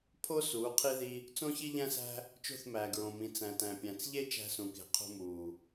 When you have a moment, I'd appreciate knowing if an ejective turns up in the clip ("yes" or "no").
no